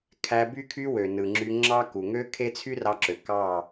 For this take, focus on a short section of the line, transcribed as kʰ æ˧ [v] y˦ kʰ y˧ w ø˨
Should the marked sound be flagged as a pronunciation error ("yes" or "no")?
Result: yes